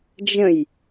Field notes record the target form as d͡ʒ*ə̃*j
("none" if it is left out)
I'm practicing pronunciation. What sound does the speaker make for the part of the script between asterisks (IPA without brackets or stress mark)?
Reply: ə̃